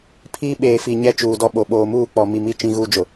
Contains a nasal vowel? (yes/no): yes